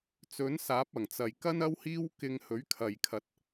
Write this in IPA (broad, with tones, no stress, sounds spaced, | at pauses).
t͡s ɵ˨˥ n s aː˨˥ p̚ ɐ˨˩ ŋ t͡s ɐ˨˩ j k ɐ˥ n ɐ˥ w h iː˥ w k ɪ˧ ŋ h ɵ˨˥ ɥ kʰ ɐ˨ j kʰ ɐ˧ t̚